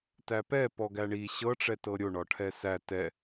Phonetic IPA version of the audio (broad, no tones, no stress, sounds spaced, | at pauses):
t æ p ɛ p ɔ ɡ æ ɳ i ɕ ɤ ʈ͡ʂ ɛ t ɤ ɾʲ o ɳ ɒ ʈʰ ɛ s æ t ɛ